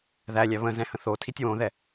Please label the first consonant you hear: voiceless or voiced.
voiced